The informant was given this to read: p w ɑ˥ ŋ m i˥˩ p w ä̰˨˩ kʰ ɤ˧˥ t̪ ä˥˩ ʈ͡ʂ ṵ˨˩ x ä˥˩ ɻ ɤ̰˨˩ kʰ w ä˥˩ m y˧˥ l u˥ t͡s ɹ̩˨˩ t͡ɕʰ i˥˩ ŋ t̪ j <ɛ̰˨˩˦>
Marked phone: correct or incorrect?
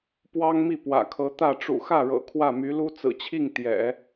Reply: correct